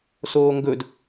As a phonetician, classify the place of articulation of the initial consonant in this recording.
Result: alveolar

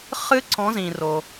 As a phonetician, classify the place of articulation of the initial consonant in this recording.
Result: uvular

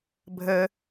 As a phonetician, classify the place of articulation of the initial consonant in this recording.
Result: labial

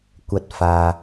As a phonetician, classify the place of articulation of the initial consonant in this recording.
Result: velar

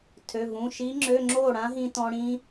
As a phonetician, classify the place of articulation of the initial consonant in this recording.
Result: alveolar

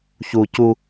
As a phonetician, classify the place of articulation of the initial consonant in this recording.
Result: palatal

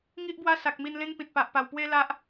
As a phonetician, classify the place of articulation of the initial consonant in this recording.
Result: velar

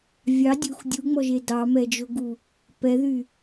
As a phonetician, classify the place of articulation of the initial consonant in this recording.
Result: labial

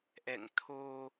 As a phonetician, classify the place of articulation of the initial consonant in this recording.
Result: glottal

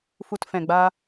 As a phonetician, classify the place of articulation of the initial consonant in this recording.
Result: labial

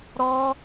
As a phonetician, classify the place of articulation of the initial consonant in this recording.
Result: alveolar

